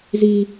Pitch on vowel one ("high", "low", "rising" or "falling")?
high